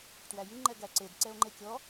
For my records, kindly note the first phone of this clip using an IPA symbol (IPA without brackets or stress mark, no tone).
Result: t